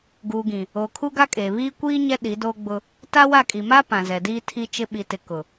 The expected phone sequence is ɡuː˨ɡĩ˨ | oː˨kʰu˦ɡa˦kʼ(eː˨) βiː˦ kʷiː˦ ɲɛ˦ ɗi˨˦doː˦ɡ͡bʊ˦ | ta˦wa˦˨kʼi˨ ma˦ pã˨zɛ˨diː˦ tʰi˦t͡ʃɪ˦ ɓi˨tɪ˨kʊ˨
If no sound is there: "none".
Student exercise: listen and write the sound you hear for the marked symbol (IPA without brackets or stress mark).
eː˨